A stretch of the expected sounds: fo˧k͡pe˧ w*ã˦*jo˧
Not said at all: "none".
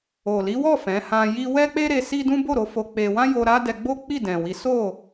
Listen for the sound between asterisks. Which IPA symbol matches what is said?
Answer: ã˦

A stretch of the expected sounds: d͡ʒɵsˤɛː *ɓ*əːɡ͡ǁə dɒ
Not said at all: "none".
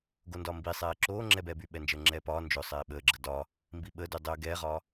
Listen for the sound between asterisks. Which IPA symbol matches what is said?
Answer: ɓ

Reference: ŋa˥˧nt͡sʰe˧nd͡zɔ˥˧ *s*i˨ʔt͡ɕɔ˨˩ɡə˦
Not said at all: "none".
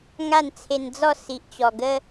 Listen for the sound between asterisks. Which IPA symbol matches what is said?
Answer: s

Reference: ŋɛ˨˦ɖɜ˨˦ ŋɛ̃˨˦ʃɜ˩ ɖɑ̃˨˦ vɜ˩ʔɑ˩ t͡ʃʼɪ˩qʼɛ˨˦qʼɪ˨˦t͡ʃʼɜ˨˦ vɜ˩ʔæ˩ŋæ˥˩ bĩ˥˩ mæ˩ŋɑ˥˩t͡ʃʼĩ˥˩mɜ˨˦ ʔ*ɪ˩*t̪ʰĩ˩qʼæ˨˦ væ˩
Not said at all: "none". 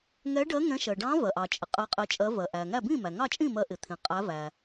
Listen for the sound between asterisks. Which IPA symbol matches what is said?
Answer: ɪ˩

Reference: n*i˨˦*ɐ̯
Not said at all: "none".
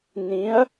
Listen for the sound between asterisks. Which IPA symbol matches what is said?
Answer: ĩ˨˦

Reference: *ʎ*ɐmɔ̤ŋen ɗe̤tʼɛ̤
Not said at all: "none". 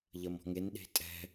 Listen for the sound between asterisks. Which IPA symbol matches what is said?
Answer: ʎ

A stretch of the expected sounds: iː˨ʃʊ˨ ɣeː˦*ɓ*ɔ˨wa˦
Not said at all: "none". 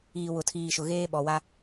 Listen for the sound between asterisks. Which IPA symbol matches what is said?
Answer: ɓ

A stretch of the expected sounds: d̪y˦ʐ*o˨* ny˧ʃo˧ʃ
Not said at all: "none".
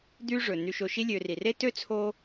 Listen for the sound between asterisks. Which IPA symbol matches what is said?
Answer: ɵ˨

